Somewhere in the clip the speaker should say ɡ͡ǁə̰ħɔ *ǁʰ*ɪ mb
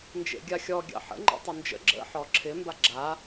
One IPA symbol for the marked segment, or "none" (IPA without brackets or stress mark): ǁʰ